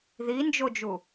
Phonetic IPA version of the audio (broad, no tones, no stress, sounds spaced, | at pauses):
ð i n d͡ʒ o d͡ʒ u